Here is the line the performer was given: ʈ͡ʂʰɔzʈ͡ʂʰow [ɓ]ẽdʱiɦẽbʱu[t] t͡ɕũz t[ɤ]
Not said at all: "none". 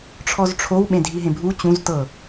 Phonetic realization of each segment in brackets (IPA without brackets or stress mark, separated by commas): ɓ, none, ɤ